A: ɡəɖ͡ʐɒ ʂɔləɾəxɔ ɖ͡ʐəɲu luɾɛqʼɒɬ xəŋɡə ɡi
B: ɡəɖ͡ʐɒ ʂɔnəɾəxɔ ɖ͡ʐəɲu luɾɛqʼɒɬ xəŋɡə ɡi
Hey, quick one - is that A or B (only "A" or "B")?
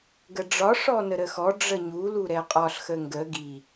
B